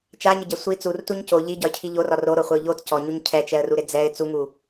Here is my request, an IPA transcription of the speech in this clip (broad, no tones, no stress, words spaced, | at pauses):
t͡ʃaɲɪɟɛ sʷi t͡surtuɲ co ʎiɟɒɪ̯cʰi ʎorɒ roɾoχʷɪʊ̯ ʎot cɔɲuɲ cʰɛt͡ʃɛə̯ruɾɪ d͡zɛɪ̯ t͡suŋu